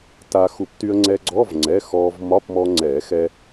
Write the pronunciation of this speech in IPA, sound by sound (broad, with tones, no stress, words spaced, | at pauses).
ta˧ xu˨˩˦pty˧ə̯ ŋ͡ǀɛ˧ɡ͡ǀɔ˧˥˧vŋ͡ǀɛ˩˧˩ xɔ˧v mɒ˧˥˧pmɔ˧ ŋ͡ǀɛ˨˩˦ xɛ˧